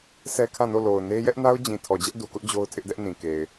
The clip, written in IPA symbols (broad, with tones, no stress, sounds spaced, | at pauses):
s ɛ˦ kʰ ã˦˨ n o˦˨ l o˨ ʊ̯ n e˦ j ɛ˦ ʔ n a˦ ʊ̯ d͡ʑ ĩ˨ tʰ ɔ˨ d͡ʑ ɛ˦ ʔ d u˨ k ʊ˦ ʔ d͡ʑ o˦ ʊ̯ tʰ ɪ˦ ʔ d ɛ˦ ʔ n ĩ˨ k e˨ ɪ̯